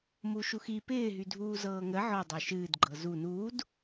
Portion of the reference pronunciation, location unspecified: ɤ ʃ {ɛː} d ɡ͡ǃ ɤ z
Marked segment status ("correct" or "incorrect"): incorrect